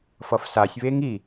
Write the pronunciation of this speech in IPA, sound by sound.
fʌfsasʲβeŋ i

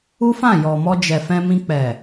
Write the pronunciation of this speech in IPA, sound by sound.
u˦fã˦˨jɔ˨mɔ˧ d͡ʒɛ˨ fɛ̃˧mĩ˧ k͡pɛ˨

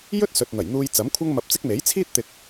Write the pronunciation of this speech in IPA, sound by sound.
jɵ˥t̚sɵ˨t̚n̪ɐ˨˩jn̪uː˧j t͡sɐ˨˥mkʷʰɐ˥ŋmɐ˧p̚t͡sɪ˥k̚ me˨˥jt͡sʰiː˥t̚t̪ɪ˧k̚

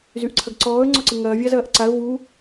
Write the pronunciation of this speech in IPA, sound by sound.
zyʔǀʰɐɡǀɔːə̯ ŋ͡ǀɔǀɪŋɐː vʲazɐːʔǀaə̯ vu

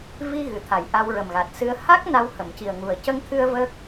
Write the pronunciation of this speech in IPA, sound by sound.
vi˧ ɣɨ˨˩t̪ʰa˨˩jʔa˧w ɹə˨˩mɣa˨˩t̚ sɨ˧ə̯ ha˦˥k̚ na˧w hə˨˩˨mci˨˩ə̯ŋu˨˩ə̯ cə˧ŋt̪ʰɨ˧ə̯ və˦˥k̚

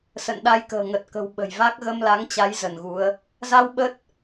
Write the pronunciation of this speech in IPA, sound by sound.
sə̰˧˨nɗa˧jkə̤ː˨˩ ŋə˨˩t̚kə̤˨˩w ɓə̤˨˩jva˦˥k̚ ɣə˧mla˨˦ŋt͡ɕa˨˦j zə˧˩nɣu˨˦ə̯ | za˧w ɓə˦˥t̚

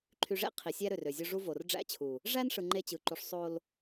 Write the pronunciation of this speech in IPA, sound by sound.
ǃʰy˨ʐḛ˦ qʰi˨sʲæ˦ ɾø˨rø˨zʲo˦ ʐu˦vo˨r ɖ͡ʐæ̰˦t͡ɕʰu˨ | ʐæ˦nʂɯ˨ ŋ͡ǃe˦t͡ɕɯ˨ǃu˨ʂ sˤo˨l

